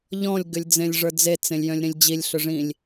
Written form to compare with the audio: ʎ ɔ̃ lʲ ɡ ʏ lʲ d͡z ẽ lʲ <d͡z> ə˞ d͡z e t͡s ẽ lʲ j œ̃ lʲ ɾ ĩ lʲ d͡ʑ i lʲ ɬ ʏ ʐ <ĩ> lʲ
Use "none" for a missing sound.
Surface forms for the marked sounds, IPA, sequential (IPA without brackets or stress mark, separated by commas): ʐ, ĩ